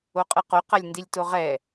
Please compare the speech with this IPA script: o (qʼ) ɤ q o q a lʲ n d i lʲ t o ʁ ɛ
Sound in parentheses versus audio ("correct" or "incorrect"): correct